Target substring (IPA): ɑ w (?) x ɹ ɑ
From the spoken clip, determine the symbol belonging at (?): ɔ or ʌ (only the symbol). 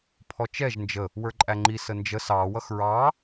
ʌ